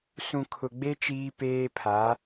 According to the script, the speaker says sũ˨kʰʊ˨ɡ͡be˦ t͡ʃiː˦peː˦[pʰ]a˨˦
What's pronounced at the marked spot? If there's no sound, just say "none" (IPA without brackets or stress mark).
pʰ